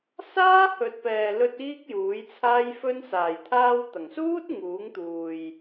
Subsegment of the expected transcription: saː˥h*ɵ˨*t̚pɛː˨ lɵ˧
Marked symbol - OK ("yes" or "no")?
yes